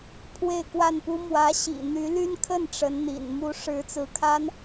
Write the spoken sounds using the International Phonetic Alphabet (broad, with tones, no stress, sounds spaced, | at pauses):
pʰ w e˥˧ ɪ̯ k w a˥˩ n p u˥ m w ä˧˥ ɕ ḭ˨˩ n̪ y˧˥ l y˥ n kʰ ə˥˩ n ʈ͡ʂ ə˧˥ n n̪ ḭ˨˩ n m u˧˥ ʂ ɻ̩˧˥ t͡s ɹ̩˧˥ kʰ a˥ n